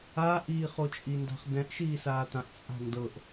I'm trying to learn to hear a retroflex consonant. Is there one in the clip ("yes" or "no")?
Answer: no